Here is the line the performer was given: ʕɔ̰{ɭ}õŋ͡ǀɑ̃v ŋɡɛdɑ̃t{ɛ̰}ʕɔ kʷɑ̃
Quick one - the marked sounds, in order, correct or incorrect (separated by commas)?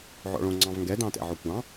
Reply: correct, correct